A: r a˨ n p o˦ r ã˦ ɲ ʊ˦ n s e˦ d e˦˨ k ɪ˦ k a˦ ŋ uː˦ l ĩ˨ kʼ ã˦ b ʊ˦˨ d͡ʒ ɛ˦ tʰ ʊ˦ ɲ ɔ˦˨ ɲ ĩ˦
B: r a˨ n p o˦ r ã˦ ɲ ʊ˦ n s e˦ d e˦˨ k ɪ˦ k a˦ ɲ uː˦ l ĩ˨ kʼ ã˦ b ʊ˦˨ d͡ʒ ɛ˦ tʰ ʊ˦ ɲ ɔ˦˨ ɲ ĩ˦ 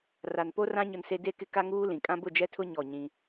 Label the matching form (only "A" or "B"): A